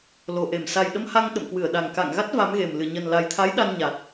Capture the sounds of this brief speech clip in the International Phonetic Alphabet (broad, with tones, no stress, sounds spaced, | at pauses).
l o˨˩ ʔ e˧˩ m s a˨˩ j ɗ ə˧ m h a˧ ŋ ɗ ə̰˧˨ m k w ɨ˧˩ ə̯ ɗ a˨˩ ŋ k a̰˧˨ ŋ ɣ a˦˥ t̚ v a˨˦ m ɣ e˨˩ m l ɨ˧˩ ɲ ə˨˩ n l a˨˩ j t̪ʰ a˨˦ j ɗ a˧ n ɲ a˨˩ t̚